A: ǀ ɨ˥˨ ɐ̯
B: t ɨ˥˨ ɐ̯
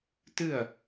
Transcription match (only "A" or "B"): B